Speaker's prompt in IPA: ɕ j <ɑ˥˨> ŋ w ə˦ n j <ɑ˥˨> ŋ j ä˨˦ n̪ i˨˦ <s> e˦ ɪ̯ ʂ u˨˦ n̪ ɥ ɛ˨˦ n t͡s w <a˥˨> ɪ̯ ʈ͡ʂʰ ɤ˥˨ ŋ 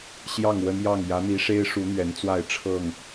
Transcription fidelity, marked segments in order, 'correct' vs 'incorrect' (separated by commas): correct, correct, incorrect, correct